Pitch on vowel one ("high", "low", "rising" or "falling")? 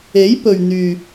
rising